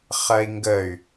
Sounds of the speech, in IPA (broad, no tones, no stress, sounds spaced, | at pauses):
χ ɜ i̯ ŋ ɡ ə y̯